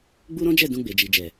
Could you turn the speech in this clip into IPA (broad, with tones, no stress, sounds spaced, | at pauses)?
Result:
ɡ͡b u˦ ɾ ɔ̃˦ d͡ʒ ɛ˦˨ d ũ˧ ɡ͡b e˨ d͡ʒ i˨ d͡ʒ ɛ˨